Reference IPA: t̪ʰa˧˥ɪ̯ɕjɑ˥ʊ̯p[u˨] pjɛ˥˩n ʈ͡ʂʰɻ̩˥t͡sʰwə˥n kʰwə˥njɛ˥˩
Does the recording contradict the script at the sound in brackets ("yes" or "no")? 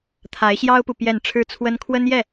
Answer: no